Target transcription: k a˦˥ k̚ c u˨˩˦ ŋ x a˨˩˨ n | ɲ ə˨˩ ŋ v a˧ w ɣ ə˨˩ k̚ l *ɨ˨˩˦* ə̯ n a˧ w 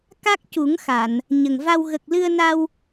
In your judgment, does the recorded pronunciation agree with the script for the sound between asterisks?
no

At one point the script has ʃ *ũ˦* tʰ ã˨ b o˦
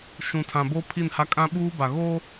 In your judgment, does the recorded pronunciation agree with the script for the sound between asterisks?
no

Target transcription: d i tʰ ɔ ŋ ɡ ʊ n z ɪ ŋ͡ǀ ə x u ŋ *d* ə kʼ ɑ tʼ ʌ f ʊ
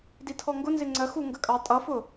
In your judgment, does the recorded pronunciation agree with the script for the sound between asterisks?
no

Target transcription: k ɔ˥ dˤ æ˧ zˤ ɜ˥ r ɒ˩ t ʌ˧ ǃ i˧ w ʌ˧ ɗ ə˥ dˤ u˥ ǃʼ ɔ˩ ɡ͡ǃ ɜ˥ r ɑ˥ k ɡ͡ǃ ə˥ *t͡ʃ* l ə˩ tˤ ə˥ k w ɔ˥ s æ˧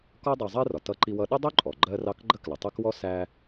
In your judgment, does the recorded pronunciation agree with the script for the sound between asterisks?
no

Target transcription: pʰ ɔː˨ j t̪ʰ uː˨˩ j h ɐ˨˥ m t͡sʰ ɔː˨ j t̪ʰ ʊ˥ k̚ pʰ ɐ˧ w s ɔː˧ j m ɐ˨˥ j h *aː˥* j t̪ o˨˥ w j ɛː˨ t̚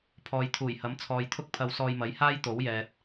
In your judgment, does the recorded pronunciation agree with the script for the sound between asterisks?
yes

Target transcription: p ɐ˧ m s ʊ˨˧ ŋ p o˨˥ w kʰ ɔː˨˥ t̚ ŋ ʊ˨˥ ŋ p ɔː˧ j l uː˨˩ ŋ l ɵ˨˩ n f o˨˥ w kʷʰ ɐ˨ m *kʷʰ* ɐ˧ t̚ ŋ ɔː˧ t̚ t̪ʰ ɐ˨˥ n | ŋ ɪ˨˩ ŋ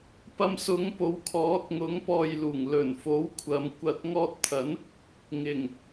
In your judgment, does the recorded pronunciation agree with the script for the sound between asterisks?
no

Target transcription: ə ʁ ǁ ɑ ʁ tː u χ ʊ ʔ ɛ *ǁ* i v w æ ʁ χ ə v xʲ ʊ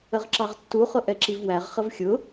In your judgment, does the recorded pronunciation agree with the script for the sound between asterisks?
yes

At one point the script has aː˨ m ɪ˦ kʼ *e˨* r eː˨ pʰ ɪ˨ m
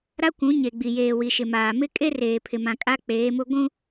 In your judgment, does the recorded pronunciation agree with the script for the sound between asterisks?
no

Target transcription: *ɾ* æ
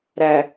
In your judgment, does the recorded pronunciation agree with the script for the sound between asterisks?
yes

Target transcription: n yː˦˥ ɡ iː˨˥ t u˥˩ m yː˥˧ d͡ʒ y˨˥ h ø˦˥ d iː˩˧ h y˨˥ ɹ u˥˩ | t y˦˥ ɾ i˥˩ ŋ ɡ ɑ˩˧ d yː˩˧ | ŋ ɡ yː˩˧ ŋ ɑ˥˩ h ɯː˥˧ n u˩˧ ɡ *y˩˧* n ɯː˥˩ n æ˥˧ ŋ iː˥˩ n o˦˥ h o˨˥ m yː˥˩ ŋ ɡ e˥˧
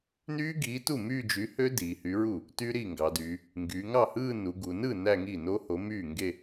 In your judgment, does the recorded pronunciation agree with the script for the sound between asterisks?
no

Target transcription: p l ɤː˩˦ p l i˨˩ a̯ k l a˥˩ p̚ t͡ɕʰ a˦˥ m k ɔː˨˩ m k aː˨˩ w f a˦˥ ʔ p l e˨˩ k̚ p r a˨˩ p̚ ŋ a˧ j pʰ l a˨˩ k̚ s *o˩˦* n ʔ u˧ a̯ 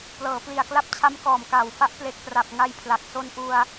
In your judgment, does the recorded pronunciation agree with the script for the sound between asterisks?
no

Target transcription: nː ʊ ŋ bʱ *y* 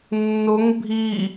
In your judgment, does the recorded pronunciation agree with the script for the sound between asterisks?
no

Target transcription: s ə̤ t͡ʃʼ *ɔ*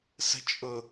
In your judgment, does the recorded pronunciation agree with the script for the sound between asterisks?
no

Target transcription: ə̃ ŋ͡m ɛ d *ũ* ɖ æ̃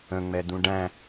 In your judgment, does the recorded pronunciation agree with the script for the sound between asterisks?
yes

